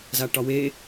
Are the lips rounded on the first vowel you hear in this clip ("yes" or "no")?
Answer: no